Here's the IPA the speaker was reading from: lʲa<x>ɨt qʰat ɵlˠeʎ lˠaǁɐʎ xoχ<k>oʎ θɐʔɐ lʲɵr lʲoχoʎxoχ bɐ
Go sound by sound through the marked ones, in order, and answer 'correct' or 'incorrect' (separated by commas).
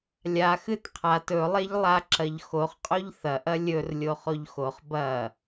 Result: correct, incorrect